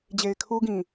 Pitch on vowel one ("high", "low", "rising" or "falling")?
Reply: low